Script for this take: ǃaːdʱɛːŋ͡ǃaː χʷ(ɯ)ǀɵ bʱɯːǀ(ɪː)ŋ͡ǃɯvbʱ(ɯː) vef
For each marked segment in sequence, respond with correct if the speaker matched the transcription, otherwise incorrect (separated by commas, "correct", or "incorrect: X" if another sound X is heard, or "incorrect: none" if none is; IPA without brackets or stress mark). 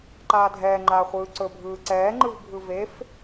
incorrect: ɯː, incorrect: ɛː, incorrect: ɯ